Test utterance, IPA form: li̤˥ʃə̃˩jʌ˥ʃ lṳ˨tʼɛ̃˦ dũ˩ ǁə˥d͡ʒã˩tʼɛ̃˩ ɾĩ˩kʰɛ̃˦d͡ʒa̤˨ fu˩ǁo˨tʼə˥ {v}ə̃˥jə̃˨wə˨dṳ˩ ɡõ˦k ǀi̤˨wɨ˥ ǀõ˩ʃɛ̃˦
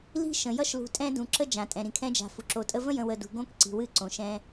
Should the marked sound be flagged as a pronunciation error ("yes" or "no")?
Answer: no